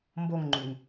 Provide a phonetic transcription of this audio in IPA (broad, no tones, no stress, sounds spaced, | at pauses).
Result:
m b o ŋ ŋ͡ǃ ʉ ŋ